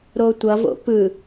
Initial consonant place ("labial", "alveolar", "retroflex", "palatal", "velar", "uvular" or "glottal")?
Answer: alveolar